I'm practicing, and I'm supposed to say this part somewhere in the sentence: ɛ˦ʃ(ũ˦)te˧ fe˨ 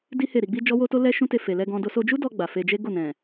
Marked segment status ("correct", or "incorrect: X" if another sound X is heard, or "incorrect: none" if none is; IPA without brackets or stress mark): correct